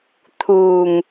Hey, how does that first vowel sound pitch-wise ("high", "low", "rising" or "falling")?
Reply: low